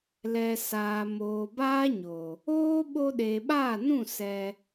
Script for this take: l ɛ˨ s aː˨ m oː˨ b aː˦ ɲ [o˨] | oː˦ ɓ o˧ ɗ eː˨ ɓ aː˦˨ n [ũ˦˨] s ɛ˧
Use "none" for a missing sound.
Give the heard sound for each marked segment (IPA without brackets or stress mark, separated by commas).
o˨, ũ˦˨